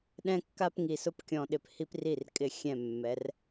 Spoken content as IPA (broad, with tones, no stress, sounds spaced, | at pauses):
ɗ ɛ̃˦ kː a˦ p ŋ i˨ s ʊ˦ p kʲ ɔ̃˨ ɗ ɪ˨ p h i˦ p r i˦˨ r kʼ ɪ˦˨ xʲ ɛ̃˦˨ mː ɛ˨˦ r